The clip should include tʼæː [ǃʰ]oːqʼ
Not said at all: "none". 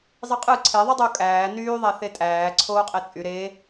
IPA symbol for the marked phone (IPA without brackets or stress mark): ǀʰ